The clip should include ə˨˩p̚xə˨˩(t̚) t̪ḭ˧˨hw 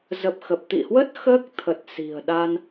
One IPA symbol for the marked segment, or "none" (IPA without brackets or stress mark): p̚